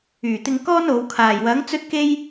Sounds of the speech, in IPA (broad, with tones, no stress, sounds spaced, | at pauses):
yː˨˩ t̪ ɪ˧ ŋ k ɔː˥ n o˨˧ w kʰ aː˨˩ j w ɐ˨˥ ŋ t͡s ɵ˥ t̚ k e˥ j